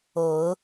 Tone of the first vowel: low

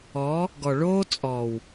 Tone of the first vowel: rising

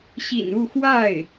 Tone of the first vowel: low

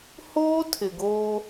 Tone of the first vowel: high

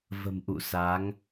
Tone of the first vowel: low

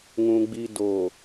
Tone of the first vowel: low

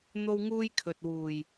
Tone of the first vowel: high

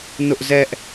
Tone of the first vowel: high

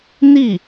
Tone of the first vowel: falling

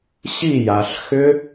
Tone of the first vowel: falling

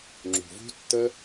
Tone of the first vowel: low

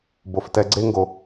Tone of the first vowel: low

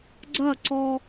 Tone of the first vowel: falling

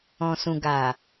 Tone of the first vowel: low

